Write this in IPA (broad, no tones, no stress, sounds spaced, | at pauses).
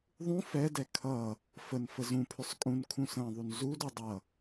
ðˤ ũ f ɛ d ɛ kʰ ʌ | f ə n f ə z ũ pʰ ʏ sˤ kʼ ũ n kʰ ũ s ə̃ː ðˤ u n z u d u dˤ ʌ